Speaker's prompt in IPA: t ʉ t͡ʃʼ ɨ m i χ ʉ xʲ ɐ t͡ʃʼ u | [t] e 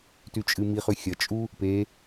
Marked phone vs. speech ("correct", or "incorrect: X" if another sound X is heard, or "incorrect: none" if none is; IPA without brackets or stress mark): incorrect: p